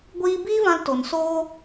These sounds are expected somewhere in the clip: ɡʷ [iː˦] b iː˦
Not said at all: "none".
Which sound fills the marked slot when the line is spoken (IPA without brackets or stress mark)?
iː˦